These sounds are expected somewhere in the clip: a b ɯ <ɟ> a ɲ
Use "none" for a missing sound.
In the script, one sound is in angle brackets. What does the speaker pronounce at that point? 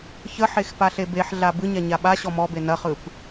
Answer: ɲ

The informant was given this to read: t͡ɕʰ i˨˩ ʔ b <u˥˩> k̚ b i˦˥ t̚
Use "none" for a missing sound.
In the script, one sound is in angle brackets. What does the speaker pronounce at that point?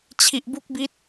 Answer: u˦˥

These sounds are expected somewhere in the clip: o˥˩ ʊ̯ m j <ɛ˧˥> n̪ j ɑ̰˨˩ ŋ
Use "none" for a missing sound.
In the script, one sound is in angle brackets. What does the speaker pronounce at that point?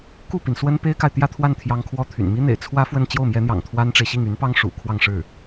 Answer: ɛ˧˥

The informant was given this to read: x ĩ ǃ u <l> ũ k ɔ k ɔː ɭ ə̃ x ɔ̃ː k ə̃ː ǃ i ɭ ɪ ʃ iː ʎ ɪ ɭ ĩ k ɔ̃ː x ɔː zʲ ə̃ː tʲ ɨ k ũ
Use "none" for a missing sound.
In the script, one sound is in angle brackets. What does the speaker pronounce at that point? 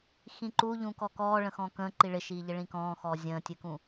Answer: ʎ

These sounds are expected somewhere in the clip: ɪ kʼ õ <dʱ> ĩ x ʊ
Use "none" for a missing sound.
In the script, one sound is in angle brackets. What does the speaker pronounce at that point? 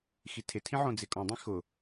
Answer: dˤ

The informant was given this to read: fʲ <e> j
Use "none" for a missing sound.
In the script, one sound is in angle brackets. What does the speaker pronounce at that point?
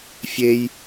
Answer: e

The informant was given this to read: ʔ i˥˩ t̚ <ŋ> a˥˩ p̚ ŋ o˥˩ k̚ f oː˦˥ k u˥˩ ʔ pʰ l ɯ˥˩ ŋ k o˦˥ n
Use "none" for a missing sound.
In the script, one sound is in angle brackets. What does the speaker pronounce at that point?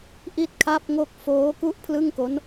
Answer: kʰ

